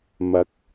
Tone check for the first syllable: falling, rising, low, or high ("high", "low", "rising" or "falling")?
rising